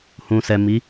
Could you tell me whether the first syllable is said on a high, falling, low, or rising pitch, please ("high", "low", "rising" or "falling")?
low